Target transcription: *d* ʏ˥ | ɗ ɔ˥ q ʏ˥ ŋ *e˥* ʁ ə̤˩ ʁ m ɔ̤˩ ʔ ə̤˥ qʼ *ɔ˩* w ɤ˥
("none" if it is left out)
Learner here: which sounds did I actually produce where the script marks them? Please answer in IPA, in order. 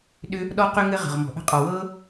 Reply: ɗ, ɘ˥, ɔ˩

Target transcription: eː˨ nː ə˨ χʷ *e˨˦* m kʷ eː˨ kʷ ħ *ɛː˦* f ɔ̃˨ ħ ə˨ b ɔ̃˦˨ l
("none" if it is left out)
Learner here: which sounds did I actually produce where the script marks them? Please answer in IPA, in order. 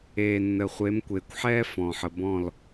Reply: e˨˦, ɛː˦

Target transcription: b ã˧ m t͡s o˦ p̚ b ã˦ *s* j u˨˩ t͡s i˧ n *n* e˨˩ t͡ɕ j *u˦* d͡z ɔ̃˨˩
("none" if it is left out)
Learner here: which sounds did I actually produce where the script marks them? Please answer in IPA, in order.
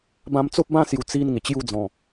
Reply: s, ŋ, u˥˧

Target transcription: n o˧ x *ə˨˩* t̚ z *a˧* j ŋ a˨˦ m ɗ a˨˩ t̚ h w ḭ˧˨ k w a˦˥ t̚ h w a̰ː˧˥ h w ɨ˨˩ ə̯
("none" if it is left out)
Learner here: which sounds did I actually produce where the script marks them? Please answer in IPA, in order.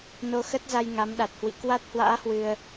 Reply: ə˦˥, a˧

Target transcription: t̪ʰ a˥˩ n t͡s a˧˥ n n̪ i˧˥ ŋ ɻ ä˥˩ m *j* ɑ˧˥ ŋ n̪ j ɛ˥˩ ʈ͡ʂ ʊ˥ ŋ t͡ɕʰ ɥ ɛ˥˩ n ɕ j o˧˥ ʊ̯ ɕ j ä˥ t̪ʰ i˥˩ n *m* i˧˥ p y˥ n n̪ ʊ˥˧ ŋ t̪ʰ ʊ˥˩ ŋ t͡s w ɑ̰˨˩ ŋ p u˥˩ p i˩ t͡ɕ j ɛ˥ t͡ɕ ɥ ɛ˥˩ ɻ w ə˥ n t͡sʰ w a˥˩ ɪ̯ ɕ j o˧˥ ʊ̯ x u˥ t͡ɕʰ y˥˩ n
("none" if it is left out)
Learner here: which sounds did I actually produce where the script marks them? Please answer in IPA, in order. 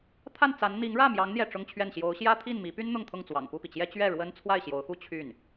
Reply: j, m

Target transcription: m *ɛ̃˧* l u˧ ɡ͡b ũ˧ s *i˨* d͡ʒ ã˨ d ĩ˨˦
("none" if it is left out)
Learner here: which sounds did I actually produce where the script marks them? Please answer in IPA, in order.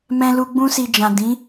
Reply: ɛ̃˧, i˨

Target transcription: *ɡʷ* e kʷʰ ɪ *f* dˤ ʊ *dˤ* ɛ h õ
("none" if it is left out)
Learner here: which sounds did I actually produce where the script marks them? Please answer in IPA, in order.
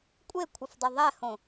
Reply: kʷʼ, f, ðˤ

